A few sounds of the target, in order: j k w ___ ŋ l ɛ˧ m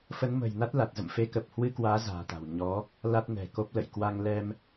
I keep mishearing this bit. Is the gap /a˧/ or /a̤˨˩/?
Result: a˧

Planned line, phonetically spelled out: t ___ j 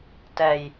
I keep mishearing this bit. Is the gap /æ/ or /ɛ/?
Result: ɛ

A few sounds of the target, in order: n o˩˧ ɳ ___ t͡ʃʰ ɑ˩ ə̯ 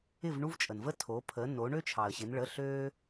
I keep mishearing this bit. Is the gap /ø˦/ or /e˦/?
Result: ø˦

